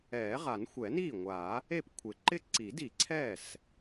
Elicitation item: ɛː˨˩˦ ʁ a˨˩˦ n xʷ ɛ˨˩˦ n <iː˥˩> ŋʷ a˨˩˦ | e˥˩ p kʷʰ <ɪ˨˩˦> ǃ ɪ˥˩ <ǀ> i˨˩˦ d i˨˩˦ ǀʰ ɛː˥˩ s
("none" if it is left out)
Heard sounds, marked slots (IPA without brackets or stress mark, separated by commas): iː˥˩, ɪ˨˩˦, ǀ